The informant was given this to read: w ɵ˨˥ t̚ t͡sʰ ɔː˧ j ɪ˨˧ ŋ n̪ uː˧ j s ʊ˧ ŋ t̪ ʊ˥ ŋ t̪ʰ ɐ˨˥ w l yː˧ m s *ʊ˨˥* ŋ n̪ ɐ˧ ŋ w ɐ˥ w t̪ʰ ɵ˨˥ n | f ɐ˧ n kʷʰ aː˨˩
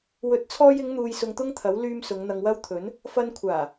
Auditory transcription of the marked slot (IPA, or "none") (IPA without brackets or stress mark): ʊ˨˧